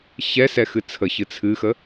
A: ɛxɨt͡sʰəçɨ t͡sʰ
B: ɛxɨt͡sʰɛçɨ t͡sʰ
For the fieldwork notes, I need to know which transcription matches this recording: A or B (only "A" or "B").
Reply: A